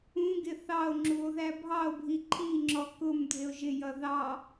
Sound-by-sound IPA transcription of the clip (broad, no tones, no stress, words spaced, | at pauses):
ũɡɪ θɑo̯ ŋ͡ǁuo̯ðæbʱɑo̯bʱi ǃʰiŋ͡ǁɔ kʊm dʱɪo̯ʒɪjʌ ðɑ